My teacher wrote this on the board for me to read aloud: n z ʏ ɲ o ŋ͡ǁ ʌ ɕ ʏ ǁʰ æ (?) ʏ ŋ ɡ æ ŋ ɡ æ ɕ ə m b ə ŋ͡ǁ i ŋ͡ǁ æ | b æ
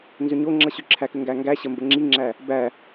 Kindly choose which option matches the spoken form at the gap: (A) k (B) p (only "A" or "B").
A